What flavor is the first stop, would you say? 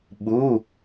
implosive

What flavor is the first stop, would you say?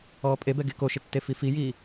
ejective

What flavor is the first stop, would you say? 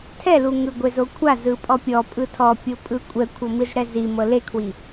aspirated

